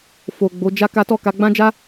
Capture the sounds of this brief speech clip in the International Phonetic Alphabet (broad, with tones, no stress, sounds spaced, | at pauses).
f o˨ ɡ͡b o˨˦ d͡ʒ a˦ k a˦ t ɔ˦˨ k a˧ ɡ͡b ã˦ d͡ʒ a˦